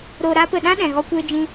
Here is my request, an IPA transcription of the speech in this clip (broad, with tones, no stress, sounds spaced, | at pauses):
ɾ o˧ ɾ aː˦ p ə˨ ɗ ã˦ ɗ ɛ̃˨ ɣ ɔ˦ kʷ eː˦ d͡ʒ ĩ˦